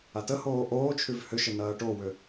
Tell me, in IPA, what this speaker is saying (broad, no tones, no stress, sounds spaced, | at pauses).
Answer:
a t ə h oː ʔ oː t͡ʃʰ y v h ʏ ʃ ə n ɐː ʈ o w ʏ